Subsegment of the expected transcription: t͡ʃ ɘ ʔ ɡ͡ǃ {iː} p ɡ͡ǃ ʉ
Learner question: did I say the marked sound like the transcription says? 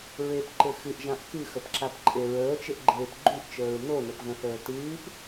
no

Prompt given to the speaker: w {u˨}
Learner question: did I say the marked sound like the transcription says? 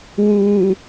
no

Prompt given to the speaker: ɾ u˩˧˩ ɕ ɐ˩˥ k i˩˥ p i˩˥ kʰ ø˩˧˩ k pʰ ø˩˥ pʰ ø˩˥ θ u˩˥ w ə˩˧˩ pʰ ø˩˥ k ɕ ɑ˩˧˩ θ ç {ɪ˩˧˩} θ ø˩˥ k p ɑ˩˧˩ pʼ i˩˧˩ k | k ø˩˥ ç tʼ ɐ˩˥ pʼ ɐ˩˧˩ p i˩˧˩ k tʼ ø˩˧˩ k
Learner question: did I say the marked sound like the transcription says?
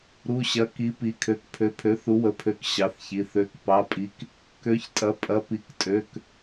no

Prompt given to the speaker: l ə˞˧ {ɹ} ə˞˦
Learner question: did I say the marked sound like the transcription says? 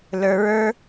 yes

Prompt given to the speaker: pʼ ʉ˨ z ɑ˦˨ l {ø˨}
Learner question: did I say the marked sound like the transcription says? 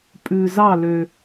yes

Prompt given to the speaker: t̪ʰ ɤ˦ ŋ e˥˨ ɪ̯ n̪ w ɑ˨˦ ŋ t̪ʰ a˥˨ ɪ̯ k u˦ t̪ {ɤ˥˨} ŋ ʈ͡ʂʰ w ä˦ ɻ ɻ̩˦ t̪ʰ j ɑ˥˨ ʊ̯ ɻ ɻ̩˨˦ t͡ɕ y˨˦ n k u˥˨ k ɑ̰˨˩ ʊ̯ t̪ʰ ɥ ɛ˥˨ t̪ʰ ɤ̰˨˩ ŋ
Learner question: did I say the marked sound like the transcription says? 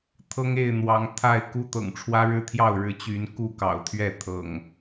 no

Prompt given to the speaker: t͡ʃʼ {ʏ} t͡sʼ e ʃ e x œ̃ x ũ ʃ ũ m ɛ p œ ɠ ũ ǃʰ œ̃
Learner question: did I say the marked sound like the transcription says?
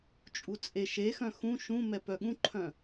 no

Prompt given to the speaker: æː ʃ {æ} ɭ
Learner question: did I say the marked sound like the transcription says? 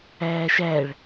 yes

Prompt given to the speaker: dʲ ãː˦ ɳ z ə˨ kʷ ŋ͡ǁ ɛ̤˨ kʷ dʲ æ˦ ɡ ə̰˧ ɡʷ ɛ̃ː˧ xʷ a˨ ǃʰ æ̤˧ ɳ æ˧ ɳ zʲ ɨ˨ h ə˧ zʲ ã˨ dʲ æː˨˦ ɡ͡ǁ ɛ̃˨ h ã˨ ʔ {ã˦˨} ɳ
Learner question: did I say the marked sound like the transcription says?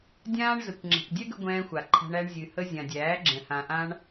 no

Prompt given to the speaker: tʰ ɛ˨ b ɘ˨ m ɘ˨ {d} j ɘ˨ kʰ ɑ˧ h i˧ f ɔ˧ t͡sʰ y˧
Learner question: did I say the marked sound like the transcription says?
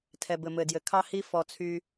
yes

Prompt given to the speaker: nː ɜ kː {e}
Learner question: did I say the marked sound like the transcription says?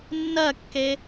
yes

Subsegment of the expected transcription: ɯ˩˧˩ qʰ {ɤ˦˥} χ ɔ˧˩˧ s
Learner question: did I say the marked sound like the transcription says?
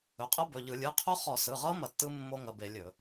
no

